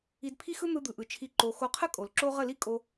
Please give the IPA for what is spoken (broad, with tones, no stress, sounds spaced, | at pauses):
i˧ d pʰ i˦ x ɯ˦ n̪ ɯ˧ d̪ ɯ˨ ʔ ɯ˨ t͡ʃʰ i˧ ǃ o˧ x o˧ qʰ ə˦ kʼ o˨ l ǁ o˦ ʁ ə˦˨ l i˦ kʼ o˧